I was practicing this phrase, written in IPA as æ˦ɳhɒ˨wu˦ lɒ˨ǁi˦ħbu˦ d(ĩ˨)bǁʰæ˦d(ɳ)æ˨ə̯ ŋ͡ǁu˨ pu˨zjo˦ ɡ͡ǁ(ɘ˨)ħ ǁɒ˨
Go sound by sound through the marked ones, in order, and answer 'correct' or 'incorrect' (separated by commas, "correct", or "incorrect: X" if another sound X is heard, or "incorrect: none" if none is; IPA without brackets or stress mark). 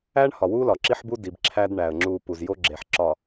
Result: incorrect: i˨, correct, incorrect: e˨